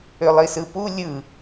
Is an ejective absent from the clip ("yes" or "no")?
yes